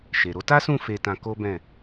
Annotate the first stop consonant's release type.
plain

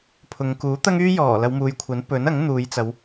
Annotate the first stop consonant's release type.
aspirated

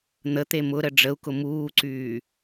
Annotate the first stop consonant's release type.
plain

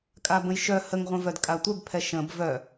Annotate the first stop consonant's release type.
ejective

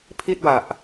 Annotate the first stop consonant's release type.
aspirated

